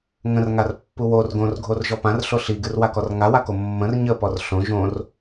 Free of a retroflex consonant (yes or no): yes